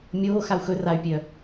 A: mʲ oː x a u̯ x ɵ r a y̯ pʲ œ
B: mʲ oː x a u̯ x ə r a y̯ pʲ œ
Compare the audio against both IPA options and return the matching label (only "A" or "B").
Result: A